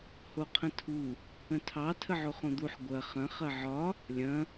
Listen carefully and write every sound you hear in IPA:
h o qʰ ə̃ tʰ u | ə̃ tʰ ɑ tʰ ə ʕ o χ õ d̪ u ħ ɡʷ ɐ χ ɐ̃ χ ɐ ʕ ɒ | lʲ ɐ̃

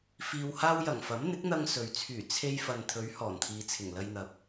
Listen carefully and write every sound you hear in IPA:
f iː˧ w h aː˥ w j ɐ˨˩ ŋ f ɐ˨˥ m n̪ ɪ˨˥ k̚ n̪ ɐ˧ ŋ s ɵ˨ ɥ t͡sʰ yː˨˩ t͡sʰ e˧ j f ɐ˨ n t̪ʰ ɵ˨˧ ɥ h ɔː˨˩ n t̪ʰ iː˨ t͡sʰ ɪ˨˩ ŋ l ɐ˧ j n̪ ɐ˨ p̚

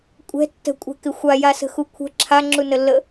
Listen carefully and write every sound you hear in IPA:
kʷʼ ɛ̤ tː ə̤ kʷʼ ɛ̤ k ɪ xʷ a j a s ə̤ x u kʷʰ ə̤ ǁʰ a ŋ͡ǁ u n ə lː ə

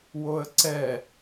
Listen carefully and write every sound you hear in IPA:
w o ə̯ ǀ ɛ

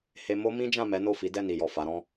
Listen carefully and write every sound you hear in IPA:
h e˦ m o˦ m ĩ˦ d͡ʒ ã˦˨ m ɛ˨˦ n o˦˨ f i˨˦ d ɛ˦˨ n i˨ j ɔ˨ f a˨˦ ɾ ɔ̃˦

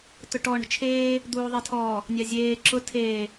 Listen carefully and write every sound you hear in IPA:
t ʊ ʈ ɔ ɳ ə̤ t͡ʃʰ eː | d̪ uː ðˤ e tʰ ɔː | nʲ ɑ zʲ eː ǁ ʊ tʰ eː

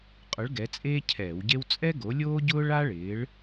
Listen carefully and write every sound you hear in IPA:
qʼ ʊ˨˥ ɭ ɡ ɛ˨˥ t͡sʼ eː˥ cʰ ɛː˧˩˧ w ɟ e˥ w t͡sʼ ɛ˥ ɡ o˨˥ lʲ oː˥ ɟ ʊː˥ ɭ a˥ ɭ ɪː˨˥ ɭ

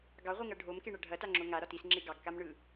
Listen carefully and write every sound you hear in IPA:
ɡ ɑ ʁʷ i ŋ ɐ ɖʱ o m k e ɳ ɐ ɖʱ ɐ t a ŋ͡ǁ o ŋ a ɾ ɒ t i s ŋ͡ǁ e ɡ ɑ ɡ k a m ɳ ɯ

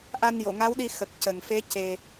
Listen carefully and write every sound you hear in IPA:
ʔ a˧ n j o˨˩˨ ŋ a˧˥ w ɗ i˧ x ə˨˩ k̚ c ə˨˩ ŋ f e˧˥ c e˧

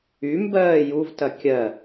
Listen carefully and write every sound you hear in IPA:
y m b ɜː j u v t ɐ kʲ ɜ

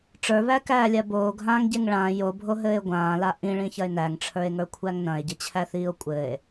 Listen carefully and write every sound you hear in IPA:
ʈ͡ʂ ə˞ β æ k æː lʲ a b oː ɡʱ ãː ŋ ɟ e ŋ ɭ ãː j o bʱ o ɦ ɘː e̯ ɡʷ ãː l a ʔ ĩ ɭ ĩ ç ɐ e̯ n æ ŋ ʈ͡ʂʰ ə˞ e̯ ŋ ə˞ kʷʰ æ ŋ n ɐ̃ e̯ ɟ ɘ t͡ɕʰ æ θ iː o̯ kʷʼ ɘː e̯

